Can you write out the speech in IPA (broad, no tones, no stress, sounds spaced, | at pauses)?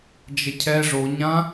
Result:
d͡ʒ ə cʰ ɛ ʐ o ɲ ã